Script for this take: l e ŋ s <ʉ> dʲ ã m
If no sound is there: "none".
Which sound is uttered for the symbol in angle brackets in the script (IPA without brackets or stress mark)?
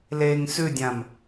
ʉ